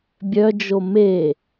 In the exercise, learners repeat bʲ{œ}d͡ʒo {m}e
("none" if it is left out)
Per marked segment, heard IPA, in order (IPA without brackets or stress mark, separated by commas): œ, m